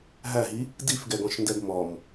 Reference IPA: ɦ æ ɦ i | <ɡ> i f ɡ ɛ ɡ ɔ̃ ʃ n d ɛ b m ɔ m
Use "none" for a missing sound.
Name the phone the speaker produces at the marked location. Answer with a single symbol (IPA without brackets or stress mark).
d